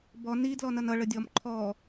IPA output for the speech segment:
b ɔ n i d l ɔ n ʌ n ʌ ɭ ə dʲ ɔ m ǃʰ ɔ

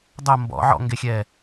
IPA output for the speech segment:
dˤ ɐ m b ɔ̰ ʕ ɔ̰ ŋ ɡ e xʲ ɛ

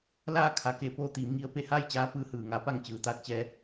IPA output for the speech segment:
l aː˥˨ kʰ a˩˧ k e˩˧ p oː˧ t̪ iː˩˧ m ŋ i˧ ə̯ p e˥˨ h aː˥˨ j t͡ɕ aː˧˥ p ɯː˧ h ɯː˩ ŋ a˧˥ p a˥˨ ŋ t͡ɕ ɯː˩˧ t̪ aː˧˥ t̚ t͡ɕ ɛː˧

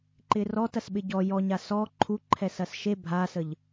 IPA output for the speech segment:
ǃ ɪ r ɔ t ɐ s ɓ ɪ ɟ ɔ j ɔ ɲ a s ɔ ǃʰ u ǃʰ ɛ s ɐ s ʃ e bʱ a s ə ʎ

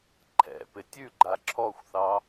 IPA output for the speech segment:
ǃʰ ɛ̰ p ɪ tʲ ʉ ɡ͡ǃ a ǁʰ ɔ xʷ θ ɑ

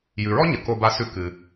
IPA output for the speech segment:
j ʉ˩ ɹ ɔ˥ ɲ ə˩ k o˧ b a˧ s ʉ˧ k ɨ˩

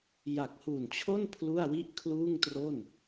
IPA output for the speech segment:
j a˨˩ k̚ h u˨˩ n t͡ɕʰ o˥˩ n pʰ l u˥˩ a̯ w i˥˩ ʔ kʰ l uː˥˩ ŋ t r o˥˩ n

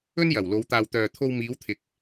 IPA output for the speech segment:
ɵ˥ n j ɐ˨˩ w l o˨˧ w t̪ aː˧ w t̪ œː˨ t̪ʰ o˧ w m iː˨˧ w t̪ʰ ɪ˨ k̚

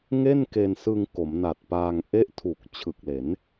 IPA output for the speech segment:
ŋ e˥˩ n k e˧ n s ɯ˧ ŋ k o˩˦ m n a˨˩ t̚ p aː˧ ŋ ʔ e˥˩ ʔ tʰ u˨˩ k̚ t͡ɕʰ ɯ˨˩ k̚ l e˩˦ n

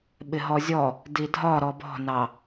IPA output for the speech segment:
ɓ ɪ ɦ ɔ zʲ ɔ | d i dʱ ɒ ɾ ɔ b ɔ̤ n ɑ

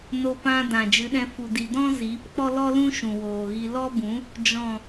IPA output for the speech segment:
n o˧ p ã˧ d ã˨ d͡ʒ ɨ˨˦ ɗ ɛ̃˧ f u˨ d i˨ d ɔ̃˦ z iː˨˦ p k͡p ɔ˦ l ɔ˦ l ũ˦ ʃ ũ˨ w oː˨ ɣ i˧ l ɔ˦ b ũ˨˦ | d͡ʒ ɔ̃˨

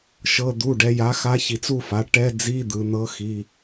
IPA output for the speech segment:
ʃ ɤ˩˧˩ d̪ u˩˧˩ ɖ ɛ˩˧ j a˩˥ x a˧˥ ç i˩˧ t͡s u˥˨ f a˩˥ ʈ ɛ˧˥˧ d͡z i˧˥˧ d̪ ɯ˩˧ n̪ ɤ˧˥ x i˩˧˩

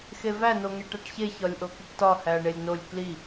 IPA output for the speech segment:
x e v æ n o ŋ e ʈ æ ʈ ç e ç ɒ lʲ ʔ o k i ʈ t ɒ h æ ɐ̯ ɳ e lʲ n o lʲ k l i

